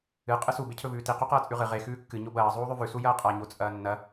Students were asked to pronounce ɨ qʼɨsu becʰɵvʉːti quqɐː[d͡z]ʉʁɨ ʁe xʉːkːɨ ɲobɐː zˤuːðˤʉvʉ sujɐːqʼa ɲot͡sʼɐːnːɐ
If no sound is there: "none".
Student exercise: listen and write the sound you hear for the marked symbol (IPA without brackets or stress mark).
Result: t͡sʼ